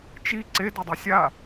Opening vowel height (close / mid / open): close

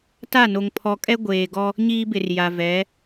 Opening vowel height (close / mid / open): open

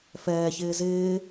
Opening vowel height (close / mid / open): mid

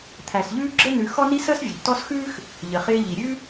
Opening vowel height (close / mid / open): open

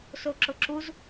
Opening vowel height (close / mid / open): mid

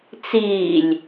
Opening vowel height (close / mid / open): close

